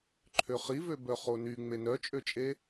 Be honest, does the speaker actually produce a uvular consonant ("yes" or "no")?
yes